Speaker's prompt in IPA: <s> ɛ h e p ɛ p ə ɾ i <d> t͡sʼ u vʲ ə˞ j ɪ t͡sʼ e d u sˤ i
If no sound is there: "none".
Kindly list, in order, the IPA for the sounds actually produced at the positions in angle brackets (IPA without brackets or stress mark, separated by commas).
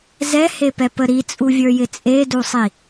z, none